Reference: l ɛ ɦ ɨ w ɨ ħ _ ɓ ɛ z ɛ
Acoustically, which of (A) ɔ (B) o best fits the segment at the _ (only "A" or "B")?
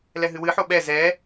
B